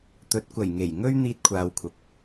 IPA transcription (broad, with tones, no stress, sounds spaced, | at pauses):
t̪ ɵ˨˥ t̚ kʷ ɐ˨˩ j ŋ e˨˩ j ŋ ɵ˥ ɥ n̪ iː˧ t̚ kʷʰ aː˨ w kʷʰ ɐ˨ p̚